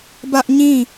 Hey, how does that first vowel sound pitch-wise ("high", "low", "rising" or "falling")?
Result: high